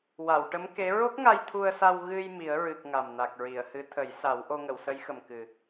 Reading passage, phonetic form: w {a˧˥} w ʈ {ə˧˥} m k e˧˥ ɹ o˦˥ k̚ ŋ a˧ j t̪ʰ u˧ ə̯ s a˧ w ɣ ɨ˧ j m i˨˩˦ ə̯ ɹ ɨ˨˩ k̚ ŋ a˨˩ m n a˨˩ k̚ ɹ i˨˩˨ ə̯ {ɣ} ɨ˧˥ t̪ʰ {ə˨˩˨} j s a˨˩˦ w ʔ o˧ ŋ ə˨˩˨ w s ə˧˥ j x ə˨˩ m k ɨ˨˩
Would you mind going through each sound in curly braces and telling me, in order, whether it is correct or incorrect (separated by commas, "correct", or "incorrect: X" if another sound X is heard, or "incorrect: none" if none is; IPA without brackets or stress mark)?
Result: incorrect: a˨˩˨, correct, incorrect: h, incorrect: ə˨˩˦